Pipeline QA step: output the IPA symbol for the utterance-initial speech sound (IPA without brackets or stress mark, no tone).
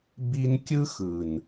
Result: b